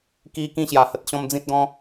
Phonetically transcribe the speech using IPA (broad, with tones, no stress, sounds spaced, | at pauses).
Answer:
k i˧ k ĩ˥˧ ɕ j a˨˩ h ə˦ t̚ ɕ ɔ̃˦ m d͡z ĩ˦ t̚ ɡ ɔ̃˦